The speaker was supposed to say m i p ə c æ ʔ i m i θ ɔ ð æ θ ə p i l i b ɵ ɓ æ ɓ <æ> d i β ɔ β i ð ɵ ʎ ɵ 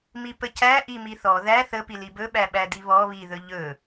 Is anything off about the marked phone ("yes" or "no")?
no